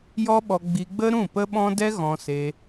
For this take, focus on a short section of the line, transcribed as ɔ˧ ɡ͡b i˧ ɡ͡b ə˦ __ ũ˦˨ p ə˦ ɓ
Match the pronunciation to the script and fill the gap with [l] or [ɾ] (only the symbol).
ɾ